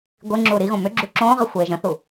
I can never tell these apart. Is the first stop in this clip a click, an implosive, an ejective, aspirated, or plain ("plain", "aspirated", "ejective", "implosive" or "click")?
plain